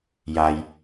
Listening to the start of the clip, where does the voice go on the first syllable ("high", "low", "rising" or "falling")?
low